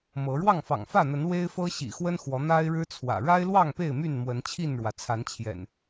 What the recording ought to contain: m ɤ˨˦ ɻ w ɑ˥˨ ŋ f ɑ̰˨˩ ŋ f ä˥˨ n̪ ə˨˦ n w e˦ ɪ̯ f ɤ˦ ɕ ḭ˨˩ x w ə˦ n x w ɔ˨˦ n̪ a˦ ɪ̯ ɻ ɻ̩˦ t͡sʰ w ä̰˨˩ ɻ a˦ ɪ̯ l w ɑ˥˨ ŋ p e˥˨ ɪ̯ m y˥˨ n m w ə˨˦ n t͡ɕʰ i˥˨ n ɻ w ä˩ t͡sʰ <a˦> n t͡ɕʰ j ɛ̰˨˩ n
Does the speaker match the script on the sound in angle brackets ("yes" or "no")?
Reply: no